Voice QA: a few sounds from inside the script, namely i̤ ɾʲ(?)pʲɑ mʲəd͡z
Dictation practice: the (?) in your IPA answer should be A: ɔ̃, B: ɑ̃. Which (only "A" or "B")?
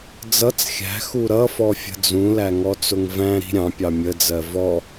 B